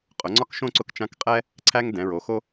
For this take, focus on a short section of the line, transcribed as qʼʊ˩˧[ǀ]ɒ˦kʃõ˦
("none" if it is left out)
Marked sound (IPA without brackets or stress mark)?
ŋ͡ǀ